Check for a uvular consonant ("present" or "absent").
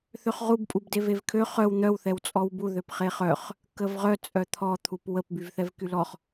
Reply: present